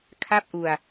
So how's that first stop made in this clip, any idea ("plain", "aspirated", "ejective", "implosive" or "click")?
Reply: aspirated